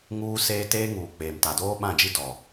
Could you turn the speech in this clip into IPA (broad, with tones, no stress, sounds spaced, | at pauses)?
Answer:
ŋ uː˦ s eː˦ t eː˦ ŋ uː˨ k͡p eː˨ m t a˨ d oː˦ ɓ ã˦˨ d͡ʒ i˦ d ɔ˨